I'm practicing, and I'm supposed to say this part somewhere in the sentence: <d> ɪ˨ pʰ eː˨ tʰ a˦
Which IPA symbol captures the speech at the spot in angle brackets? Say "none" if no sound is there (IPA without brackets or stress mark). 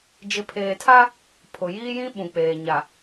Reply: d͡ʒ